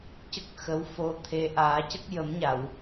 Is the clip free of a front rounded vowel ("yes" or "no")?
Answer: yes